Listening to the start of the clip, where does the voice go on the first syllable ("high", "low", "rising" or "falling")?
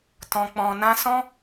low